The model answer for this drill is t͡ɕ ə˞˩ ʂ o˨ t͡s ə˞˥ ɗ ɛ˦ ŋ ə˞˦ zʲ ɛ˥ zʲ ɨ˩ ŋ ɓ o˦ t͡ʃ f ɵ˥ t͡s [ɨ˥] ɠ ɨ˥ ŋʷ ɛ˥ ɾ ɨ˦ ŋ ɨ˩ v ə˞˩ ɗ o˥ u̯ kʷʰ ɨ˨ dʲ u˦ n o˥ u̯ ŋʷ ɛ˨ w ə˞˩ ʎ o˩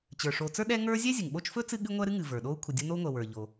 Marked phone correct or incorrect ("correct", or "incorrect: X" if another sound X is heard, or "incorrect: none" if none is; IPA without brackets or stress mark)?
correct